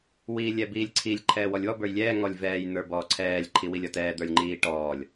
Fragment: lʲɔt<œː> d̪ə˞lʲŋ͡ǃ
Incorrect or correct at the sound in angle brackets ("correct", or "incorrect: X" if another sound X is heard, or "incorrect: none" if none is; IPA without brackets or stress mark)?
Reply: incorrect: ɛː